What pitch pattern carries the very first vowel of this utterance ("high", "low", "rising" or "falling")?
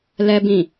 low